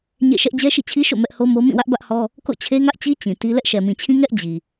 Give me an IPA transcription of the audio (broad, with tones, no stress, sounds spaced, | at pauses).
ɲ ḛ˦˨ ʃ ɛ˦ ʔ d͡ʑ ɛ˦ ʃ ḭ˦˨ t͡ɕʰ i˦ ʃ o̰˦˨ m ɛ˦ ʔ h o˦ m o˦ m ĩ˦˨ w ä˦ ʔ b ä˦ ʔ h ɔ˦ | k o̰˦˨ t͡ɕʰ e˦ ŋ ä˦ ʔ t͡ɕ i˦ t͡ɕ ĩ˨ t i˦ l ɛ˦ ʔ ʃ ɛ˨ m ĩ˨ t͡ɕʰ ĩ˦ ŋ ɛ˦ ʔ d͡ʑ i˨